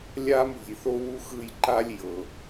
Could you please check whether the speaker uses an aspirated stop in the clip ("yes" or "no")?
no